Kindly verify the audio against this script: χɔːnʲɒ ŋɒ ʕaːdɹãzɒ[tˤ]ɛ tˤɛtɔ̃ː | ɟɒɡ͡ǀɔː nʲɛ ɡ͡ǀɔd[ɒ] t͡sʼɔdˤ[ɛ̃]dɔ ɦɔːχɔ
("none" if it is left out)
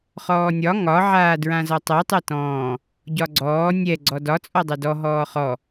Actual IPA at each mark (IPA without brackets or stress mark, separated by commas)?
tˤ, ɒ, ɛ